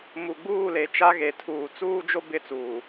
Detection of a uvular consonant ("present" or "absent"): absent